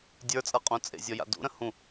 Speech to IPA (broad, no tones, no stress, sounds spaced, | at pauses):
dʲ ə˞ t͡sʼ ɤ qʼ ũ t͡sʼ ḛ zʲ ɔ j a̰ d ṵ ɾ ə̃ h ũ